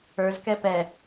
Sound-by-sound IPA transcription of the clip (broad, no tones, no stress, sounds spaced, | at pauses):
ə˞ z k ɛ p ɛ